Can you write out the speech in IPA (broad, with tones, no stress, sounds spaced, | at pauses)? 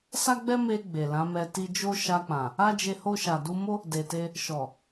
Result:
s a˦ ɡ͡b ɛ˦ m e˧ ɡ͡b e˨ l ã˨˦ m ɛ˧ t i˧ d͡ʒ o˦ ʃ a˧ k͡p ã˨ | a˦ d͡ʒ e˧ h o˧ ʃ a˨ d u˧ m o˦ | d e˨ t e˧ | ʃ ɔ˨